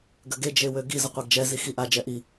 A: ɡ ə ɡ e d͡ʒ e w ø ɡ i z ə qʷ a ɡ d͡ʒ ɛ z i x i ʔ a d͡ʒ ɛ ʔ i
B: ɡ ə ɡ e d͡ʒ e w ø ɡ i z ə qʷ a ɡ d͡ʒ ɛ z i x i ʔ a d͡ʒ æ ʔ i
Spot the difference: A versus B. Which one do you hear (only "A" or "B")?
A